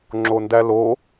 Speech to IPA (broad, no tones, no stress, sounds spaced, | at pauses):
ŋ͡ǁ o n d æ l o